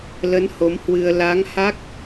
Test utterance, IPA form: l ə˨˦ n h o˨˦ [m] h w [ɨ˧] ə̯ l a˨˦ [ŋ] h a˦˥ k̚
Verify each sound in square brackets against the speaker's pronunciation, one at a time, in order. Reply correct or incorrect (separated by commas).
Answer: correct, correct, correct